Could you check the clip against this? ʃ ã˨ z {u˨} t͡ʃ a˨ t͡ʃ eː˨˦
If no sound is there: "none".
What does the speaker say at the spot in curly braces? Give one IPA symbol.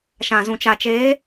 ũ˨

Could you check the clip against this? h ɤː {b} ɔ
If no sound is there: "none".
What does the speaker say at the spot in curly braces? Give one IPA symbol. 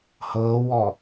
w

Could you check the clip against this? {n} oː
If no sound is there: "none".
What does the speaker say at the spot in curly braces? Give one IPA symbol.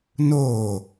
n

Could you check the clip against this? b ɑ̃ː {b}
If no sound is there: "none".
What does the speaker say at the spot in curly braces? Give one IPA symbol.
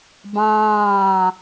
none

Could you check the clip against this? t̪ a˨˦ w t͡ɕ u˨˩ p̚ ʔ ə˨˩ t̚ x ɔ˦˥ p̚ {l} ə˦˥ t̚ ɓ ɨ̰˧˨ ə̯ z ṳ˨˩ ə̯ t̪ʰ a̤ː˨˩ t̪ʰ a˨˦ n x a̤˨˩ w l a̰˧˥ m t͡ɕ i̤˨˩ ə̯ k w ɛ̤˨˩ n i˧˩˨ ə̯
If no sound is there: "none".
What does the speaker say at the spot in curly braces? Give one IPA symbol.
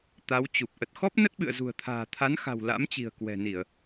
n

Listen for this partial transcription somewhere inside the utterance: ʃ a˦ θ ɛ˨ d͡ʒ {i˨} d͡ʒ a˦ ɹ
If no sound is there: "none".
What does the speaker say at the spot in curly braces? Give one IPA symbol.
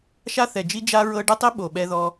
i˦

